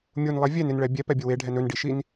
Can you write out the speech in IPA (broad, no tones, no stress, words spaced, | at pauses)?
mʲunlˠe vʲɛnɪnɭɛ bʲɛpɛbʲə weɖʱɛn ɵnɖiʃin